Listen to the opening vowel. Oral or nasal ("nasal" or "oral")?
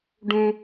nasal